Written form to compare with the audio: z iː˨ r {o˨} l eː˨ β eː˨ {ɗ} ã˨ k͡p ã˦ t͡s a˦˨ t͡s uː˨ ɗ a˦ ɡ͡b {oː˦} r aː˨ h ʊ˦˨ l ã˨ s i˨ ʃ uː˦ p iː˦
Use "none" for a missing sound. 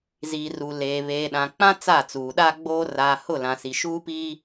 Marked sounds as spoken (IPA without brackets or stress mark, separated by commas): u˨, ɗ, oː˦